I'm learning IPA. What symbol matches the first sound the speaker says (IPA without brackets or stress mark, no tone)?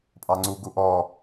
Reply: pʼ